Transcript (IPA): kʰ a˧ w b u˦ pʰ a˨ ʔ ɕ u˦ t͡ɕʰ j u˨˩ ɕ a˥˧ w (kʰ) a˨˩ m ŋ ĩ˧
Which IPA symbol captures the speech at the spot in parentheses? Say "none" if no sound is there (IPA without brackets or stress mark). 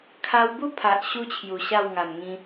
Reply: ŋ